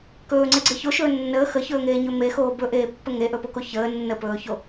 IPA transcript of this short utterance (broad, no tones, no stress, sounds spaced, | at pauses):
k ɵː ŋ͡ǀ e ɡ͡ǀ e ç o ʃ ɵː nː əː x ə ç ɵː ŋ eː ɲ ɵ m e x oː b ɵ ʔ eː pː ə ŋ e ʔ ɵ p o k o ç əː nː ə p ɵː ç o